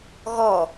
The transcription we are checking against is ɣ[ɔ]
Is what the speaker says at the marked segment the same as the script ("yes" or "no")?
yes